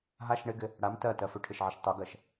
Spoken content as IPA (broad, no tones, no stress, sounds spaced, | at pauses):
ɦ a ʃ ɳ ɪ ɡ ɪ | ɽ a m t ɜ t ɜ f ʏ ʈʰ ɪ ʃ ʕ ə ʃ tˤ o ɡ ɜ ʃ